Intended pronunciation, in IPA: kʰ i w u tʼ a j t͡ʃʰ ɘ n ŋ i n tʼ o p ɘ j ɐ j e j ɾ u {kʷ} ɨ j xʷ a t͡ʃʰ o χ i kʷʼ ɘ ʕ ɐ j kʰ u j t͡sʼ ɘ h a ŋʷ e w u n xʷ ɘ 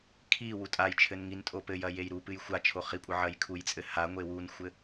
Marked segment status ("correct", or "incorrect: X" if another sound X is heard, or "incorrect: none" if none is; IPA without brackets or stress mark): incorrect: p